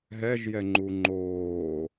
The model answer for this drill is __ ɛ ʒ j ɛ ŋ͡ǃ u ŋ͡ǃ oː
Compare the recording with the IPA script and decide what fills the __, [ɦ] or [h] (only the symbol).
ɦ